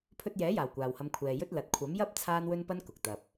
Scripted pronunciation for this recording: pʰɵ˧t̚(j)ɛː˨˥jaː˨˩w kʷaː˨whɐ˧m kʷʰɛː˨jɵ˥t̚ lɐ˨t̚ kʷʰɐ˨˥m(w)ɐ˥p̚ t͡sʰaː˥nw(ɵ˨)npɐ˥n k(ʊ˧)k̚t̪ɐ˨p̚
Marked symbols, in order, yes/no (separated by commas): yes, no, no, no